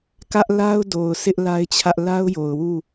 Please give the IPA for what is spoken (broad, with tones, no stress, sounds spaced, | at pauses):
k ä˦ ʔ l a˦ ʊ̯ d o˨ ʊ̯ sʰ ɪ˦ ʔ l a˦ ɪ̯ t͡ɕʰ ä˦ ʔ l a˦ ʊ̯ j o˨ ʊ̯ w u˦˨